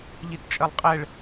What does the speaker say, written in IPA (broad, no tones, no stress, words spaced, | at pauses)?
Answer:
ʎitt͡ʃʼɜlˠqʼɛɭ